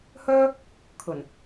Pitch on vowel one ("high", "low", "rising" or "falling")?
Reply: high